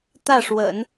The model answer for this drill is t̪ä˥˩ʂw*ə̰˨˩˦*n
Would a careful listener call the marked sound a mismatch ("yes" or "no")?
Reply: no